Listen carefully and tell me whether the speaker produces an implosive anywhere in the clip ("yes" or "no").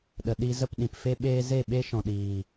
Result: yes